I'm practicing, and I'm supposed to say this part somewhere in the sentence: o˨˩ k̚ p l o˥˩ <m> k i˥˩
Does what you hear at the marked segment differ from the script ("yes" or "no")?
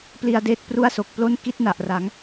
yes